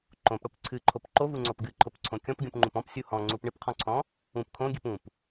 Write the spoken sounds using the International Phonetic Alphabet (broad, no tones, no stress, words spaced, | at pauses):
ǃõpɽop ǀʰɨǃʰop ǃovuŋ͡ǀop ɡɨǃʰopǀʰõ kʲɔ̃pɡʲũpŋ͡ǃũp ɔ̃psʲu hɔ̃ŋ͡ǀup ɳɨpqʰɔ̃ǀʰɔ̃ | ũp kʰõɡʲɨp ũp